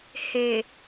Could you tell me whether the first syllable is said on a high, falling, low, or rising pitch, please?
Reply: low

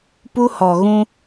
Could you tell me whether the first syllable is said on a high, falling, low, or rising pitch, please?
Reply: high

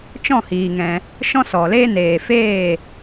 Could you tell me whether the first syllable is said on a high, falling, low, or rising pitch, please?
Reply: falling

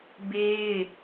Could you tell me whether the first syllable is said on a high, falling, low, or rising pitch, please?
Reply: high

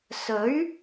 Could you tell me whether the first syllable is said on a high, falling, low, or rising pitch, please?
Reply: rising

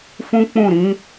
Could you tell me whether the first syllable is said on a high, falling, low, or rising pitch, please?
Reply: high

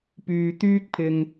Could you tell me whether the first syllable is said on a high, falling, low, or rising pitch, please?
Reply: low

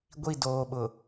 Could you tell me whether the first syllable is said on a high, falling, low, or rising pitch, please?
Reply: falling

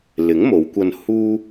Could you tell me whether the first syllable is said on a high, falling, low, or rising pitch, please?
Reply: rising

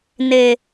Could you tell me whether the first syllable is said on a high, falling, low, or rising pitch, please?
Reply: low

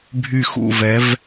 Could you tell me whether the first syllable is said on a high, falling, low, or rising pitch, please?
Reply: falling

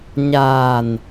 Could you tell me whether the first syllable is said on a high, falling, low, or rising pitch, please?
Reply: low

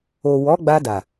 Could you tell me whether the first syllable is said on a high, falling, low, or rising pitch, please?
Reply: low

